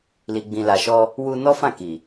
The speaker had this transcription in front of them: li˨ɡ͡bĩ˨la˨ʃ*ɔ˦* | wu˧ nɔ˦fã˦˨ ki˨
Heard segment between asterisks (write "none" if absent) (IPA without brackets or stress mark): ɔ˧